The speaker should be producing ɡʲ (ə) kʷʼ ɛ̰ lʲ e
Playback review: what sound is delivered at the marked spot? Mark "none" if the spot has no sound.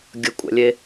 ə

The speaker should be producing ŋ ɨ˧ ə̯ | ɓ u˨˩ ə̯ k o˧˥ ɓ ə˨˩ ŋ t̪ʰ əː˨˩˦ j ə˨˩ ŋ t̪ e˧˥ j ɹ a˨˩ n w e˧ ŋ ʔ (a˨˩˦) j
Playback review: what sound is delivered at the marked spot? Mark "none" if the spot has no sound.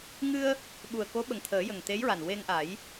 a˨˩˦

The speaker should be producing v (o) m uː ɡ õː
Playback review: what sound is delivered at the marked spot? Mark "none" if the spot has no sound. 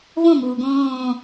õ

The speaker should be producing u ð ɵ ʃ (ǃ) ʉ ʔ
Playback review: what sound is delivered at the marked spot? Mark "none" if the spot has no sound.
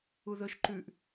ǃ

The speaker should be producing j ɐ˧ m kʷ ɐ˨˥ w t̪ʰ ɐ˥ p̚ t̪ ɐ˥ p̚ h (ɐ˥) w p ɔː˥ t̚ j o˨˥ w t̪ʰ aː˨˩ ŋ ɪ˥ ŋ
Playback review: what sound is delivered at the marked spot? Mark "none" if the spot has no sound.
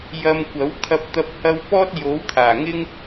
ɐ˥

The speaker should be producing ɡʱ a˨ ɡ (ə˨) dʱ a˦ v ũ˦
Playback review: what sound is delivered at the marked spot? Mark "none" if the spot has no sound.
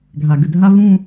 ə˨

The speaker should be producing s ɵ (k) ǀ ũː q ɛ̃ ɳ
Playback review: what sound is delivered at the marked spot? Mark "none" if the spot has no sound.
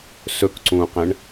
k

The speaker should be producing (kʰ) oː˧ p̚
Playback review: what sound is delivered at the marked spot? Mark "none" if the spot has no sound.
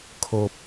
kʰ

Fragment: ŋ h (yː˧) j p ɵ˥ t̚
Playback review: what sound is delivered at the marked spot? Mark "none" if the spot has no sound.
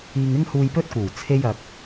uː˧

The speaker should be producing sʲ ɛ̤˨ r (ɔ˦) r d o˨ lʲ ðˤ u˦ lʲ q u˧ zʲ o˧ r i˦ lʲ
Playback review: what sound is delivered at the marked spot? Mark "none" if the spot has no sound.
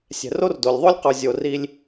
o˦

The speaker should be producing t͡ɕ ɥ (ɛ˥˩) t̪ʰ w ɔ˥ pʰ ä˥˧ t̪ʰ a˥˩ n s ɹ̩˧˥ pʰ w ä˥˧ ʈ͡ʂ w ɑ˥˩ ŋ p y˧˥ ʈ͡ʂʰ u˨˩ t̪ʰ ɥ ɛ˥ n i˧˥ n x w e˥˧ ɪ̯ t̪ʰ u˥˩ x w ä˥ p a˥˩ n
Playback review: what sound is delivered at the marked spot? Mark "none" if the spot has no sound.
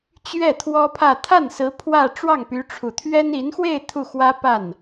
ɛ˥˩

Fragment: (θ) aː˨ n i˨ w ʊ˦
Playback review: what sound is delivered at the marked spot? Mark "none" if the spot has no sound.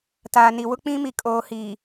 t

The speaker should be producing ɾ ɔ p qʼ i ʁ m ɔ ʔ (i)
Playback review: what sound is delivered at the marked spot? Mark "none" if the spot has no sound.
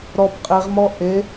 e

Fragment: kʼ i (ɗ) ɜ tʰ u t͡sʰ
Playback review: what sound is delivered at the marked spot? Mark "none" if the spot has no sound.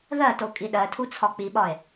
ɗ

